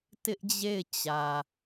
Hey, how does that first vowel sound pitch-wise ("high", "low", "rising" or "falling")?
high